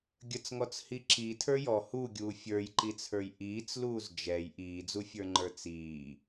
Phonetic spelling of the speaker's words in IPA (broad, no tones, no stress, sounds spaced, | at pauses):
ɡʲ ə t͡s ŋ ɔ t͡s h i ǁ i tʰ ə˞ j ɔ h u ɡʲ uː fʲ ə˞ j ǃ i t͡sʰ ə˞ j ʔ iː t͡s l uː z d͡ʒ ɛ j ʔ iː d͡z u fʲ ə˞ ŋ͡ǃ ə˞ t͡s iː